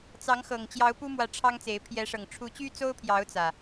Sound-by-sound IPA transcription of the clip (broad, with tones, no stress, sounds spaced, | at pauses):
t͡s ɑ˨˦ ŋ x ɤ˨˩ ŋ t͡ɕ j ɑ˨˦ ʊ̯ p u˦ m w ä˨˦ ʈ͡ʂʰ ɑ˦ ŋ t͡s e˨˦ ɪ̯ pʰ j ɛ˨˦ ʂ ɤ˨˩ ŋ ʈ͡ʂʰ u˨˦ t͡ɕ y˦ t͡s o˦ ʊ̯ pʰ j ɑ˨˦ ʊ̯ t͡s ä˨˩